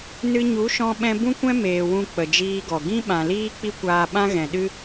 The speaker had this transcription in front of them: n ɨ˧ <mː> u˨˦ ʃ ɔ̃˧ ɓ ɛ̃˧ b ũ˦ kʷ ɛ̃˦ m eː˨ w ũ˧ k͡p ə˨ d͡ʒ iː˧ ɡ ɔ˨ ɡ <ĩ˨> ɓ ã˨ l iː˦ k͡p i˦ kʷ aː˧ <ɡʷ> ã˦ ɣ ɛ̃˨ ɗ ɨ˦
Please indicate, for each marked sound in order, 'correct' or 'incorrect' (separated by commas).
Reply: incorrect, incorrect, incorrect